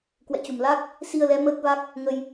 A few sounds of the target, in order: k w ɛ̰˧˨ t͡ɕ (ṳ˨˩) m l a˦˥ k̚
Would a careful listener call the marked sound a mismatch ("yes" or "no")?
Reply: no